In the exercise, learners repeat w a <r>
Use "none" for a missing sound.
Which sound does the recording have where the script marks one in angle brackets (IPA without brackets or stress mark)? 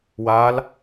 l